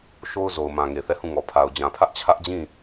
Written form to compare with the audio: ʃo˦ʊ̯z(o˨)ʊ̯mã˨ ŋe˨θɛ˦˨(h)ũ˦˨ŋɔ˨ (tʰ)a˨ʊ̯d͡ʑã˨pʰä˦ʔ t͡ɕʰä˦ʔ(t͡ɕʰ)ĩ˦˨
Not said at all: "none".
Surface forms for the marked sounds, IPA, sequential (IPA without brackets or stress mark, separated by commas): o˨, h, pʰ, d͡ʑ